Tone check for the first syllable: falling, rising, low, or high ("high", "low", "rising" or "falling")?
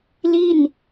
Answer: falling